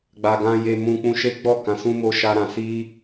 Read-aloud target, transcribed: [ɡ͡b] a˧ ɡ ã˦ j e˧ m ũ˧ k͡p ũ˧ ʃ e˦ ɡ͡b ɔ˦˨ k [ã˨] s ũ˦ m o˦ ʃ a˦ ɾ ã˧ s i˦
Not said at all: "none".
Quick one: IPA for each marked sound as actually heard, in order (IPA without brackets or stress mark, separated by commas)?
ɡ͡b, ã˧